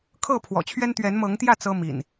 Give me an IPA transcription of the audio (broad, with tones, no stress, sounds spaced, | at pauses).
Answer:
kʰ ɤ˥˨ pʰ w ɔ̰˨˩ t͡ɕʰ ɥ ɛ˦ n t̪ ɥ ɛ˨˦ n m ɤ˨˦ ŋ t̪ j ä˥˨ t͡s ɤ˦ m ḭ˨˩ n